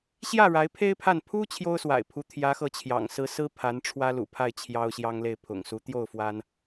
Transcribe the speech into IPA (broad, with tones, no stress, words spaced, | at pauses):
ɕjä˥˩ ɻa˧˥ɪ̯pʰe˥ɪ̯ pʰa˥˩n pʰu˥ t͡ɕʰjo˥ʊ̯swa̰˨˩ɪ̯pʰu˧˥ t̪ʰjä˧˥xɤ˧˥t͡ɕʰjɑ̰˨˩ŋ sɹ̩˥ sɹ̩˥ pʰa˧˥n ʈ͡ʂʰwä˥lṵ˨˩pʰa˥˩ɪ̯ t͡ɕʰjɑ˥ʊ̯ɕjɑ˥ŋle˥˩ɪ̯ pʰʊ̰˨˩ŋsu˧˥ t̪jo˥˩ʊ̯fwa˥n